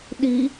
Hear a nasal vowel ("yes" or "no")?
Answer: no